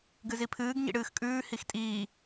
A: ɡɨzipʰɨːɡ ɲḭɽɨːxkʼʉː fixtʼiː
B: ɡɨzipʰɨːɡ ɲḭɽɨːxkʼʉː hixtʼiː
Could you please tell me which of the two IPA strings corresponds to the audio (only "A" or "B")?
B